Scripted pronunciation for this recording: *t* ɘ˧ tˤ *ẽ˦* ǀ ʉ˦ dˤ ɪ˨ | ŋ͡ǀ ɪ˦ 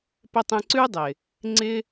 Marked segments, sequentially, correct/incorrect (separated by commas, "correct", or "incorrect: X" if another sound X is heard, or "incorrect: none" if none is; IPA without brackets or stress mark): incorrect: p, incorrect: ẽ˧